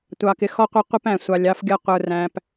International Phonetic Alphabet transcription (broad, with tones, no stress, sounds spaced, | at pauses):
tʷ ɑ˨ k ɪ˨ x ɔ˦ qʷ ɛ˦ qʷ ɪ˦ p æ̃˨ sʷ ɑ˨ lʲ ɑ˦ f ɡʲ ʌ˦ qʷ ə˞˨ r æ̃˨ p